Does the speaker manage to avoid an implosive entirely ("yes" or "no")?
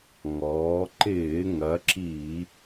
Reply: yes